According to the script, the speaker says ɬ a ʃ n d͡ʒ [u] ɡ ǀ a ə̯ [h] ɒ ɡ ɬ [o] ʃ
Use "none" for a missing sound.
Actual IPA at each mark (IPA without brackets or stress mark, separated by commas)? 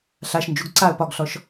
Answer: u, p, ɔ